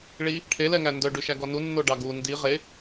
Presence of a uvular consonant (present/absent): present